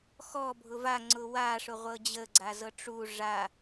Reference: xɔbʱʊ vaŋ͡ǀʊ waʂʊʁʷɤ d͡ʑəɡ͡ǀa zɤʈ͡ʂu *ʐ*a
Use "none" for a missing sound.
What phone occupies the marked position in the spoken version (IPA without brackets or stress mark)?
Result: ʐ